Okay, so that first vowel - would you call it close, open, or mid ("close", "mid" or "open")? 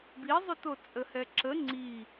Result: close